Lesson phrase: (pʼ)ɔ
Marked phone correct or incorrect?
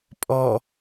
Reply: correct